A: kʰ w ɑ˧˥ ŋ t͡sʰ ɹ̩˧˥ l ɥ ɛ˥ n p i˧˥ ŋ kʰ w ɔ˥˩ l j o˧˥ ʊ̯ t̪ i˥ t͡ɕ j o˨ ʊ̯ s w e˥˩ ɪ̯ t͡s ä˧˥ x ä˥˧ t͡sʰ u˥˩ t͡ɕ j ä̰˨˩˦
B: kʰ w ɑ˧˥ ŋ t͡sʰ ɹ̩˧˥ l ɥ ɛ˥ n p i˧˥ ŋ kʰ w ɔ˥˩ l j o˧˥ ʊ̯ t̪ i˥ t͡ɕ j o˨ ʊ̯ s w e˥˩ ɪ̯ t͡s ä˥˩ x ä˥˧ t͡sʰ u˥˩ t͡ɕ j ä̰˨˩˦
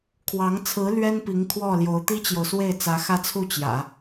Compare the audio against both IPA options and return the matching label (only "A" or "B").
A